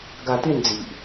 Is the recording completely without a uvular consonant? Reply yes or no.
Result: yes